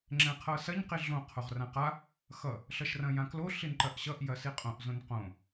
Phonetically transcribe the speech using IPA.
ŋ͡ǁ ɛ̃ qʰ ɤ s ɐ ɲ q i ɮ õ qʰ o ʁ r ã q a | x ʌ | ɬ ʌ ʃ r ɐ̃ j ã k l o ɬ i n ǃ ɐ ʔ ɕ ʌ ʔ j ɐ s i qʼ õ ʔ z õ n q õ

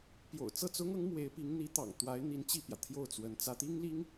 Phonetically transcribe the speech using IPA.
p j o̰˨˩ ʊ̯ t͡s ɤ˥˩ t͡s ʊ˥ ŋ ɤ˧˥ ŋ m w e˧˥ ɪ̯ p i˧˥ ŋ n̪ i˧˥ t̪ ɑ̰˨˩ ŋ t̪ w a˧˥ ɪ̯ n̪ i˧˥ n t͡ɕ i˥˩ p j ä˩ t̪ʰ j o˥˩ ʊ̯ t͡s w ə˧˥ n t͡s ä˥ t̪ i˥ ŋ l i˥ ŋ

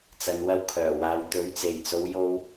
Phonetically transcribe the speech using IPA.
t͡s ɐ˨ n w ɐ˧ w kʰ œː˨˩ w aː˨ w t̪ ɵ˨˥ ɥ t͡s e˨˩ j t͡s o˨˧ w j o˧ w

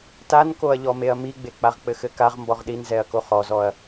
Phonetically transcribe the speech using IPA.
t a n k o ɐ̯ ʎ ɔ m e ɐ̯ m i ɡ͡b e k͡p a ʁ k͡p ɘ x ɘ k a ʁ m b ɔ ʁ ɗ i n z ɛ ɐ̯ k o χ ɔ z ɔ ɐ̯

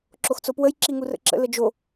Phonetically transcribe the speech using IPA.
ǁ o x t͡s o p w ə j ǁ i ŋ u r ə̰ ǁ ə̰ l ə d͡ʒ o

